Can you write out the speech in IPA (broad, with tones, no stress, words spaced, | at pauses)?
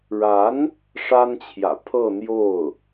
ɻa˧˥n | ʂa˥nt͡ɕʰjä̰˨˩ pʰɤ˥˧n̪jo˥˩ʊ̯